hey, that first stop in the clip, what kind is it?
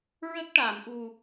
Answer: plain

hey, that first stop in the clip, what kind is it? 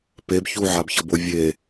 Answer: plain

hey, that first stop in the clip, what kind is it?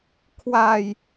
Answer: aspirated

